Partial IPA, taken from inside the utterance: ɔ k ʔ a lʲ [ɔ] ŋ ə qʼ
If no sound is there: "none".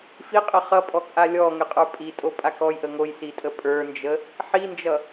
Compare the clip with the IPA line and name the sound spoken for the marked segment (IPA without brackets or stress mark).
ɔ